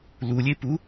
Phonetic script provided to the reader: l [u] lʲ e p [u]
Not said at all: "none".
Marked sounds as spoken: u, u

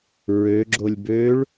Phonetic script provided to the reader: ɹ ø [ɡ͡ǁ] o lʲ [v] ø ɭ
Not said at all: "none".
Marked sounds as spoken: ɡ͡ǁ, b

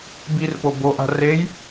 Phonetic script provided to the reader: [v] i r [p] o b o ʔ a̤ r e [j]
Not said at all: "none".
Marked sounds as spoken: b, p, j

